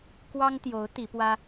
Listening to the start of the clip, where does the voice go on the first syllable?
high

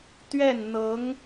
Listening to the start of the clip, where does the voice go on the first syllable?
falling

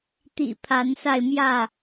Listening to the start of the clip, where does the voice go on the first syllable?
low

